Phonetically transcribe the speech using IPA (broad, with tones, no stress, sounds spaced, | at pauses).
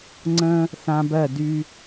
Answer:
ŋ͡ǀ ə̃˦ | θ ã˦ b ɜ˦˨ d y˦